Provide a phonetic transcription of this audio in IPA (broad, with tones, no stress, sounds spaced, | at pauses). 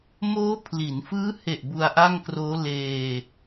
m oː˦˥ pʰ l i˩˦ n f ɯː˦˥ h e˨˩ ʔ b u˧ a̯ ʔ a˥˩ ŋ k r oː˦˥ l eː˧